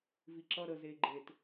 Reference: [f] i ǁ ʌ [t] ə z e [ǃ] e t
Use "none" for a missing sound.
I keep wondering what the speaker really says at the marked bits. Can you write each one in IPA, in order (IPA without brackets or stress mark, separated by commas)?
v, ɾ, ɡ͡ǃ